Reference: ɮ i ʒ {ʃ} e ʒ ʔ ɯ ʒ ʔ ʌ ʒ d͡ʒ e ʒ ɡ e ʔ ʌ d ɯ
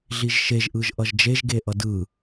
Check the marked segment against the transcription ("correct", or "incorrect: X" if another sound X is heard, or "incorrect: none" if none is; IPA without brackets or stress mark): correct